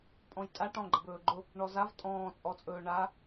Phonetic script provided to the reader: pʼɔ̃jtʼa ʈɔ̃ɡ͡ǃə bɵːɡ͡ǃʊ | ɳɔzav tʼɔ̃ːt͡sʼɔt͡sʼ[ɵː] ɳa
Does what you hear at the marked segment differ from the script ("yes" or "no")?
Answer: no